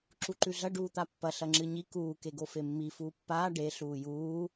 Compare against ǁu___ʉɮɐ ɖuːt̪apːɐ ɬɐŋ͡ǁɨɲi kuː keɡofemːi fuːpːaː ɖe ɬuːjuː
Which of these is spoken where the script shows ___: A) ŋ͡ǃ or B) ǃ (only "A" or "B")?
B